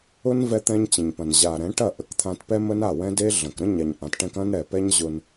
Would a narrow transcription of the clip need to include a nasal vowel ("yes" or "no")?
yes